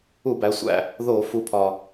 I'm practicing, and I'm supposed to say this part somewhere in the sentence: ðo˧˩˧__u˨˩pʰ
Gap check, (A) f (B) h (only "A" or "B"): A